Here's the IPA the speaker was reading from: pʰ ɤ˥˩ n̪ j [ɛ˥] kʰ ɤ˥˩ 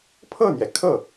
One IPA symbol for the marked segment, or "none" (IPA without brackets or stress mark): ɛ˩